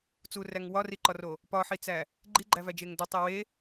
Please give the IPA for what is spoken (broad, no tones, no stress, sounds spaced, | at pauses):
t͡s u r æ ŋ w ɒ r i ǃ ɒ r o | p ɒ ħ i t͡s æ | ɡ͡ǃ i ɡ͡ǃ æ v æ d͡ʒ e ŋ d o tˤ e w e